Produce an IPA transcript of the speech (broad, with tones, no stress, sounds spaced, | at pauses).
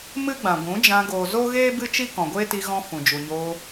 m ɨ˦ ɡ͡b ã˨ ɡʷ ũ˨˦ d͡ʒ ã˧ ɡ oː˨ z o˦ ɣ eː˦ b ɨ˦ t͡ʃ i˦ k ɔ̃˨ ɡʷ eː˦ t i˧ ɣ ɔ̃˧ f ũ˨ d͡ʒ u˨ ɲ oː˧